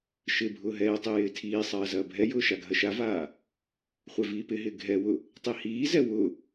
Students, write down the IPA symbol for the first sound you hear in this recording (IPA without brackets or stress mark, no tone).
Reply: ʃ